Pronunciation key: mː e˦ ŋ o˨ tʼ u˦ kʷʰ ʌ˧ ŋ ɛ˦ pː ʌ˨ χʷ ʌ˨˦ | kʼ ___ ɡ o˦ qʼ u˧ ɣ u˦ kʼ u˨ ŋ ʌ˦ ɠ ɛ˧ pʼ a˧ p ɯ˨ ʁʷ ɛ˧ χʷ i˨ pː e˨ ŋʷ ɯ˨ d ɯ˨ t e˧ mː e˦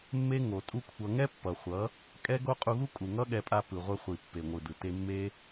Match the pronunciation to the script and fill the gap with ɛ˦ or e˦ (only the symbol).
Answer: ɛ˦